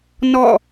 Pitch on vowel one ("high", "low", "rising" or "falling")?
falling